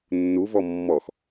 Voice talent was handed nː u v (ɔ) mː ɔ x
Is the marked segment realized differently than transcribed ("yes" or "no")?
no